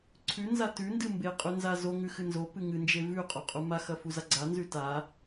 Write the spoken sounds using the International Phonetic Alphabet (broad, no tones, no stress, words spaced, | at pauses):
ǀʰʉnza tʉndɨ mbeqʼʉ nzazoŋʉ xɨnzopɨ ŋɨnd͡ʒe vʉ qʼoqʼumaxɐ fuzaɡ͡ǀanzʉ ta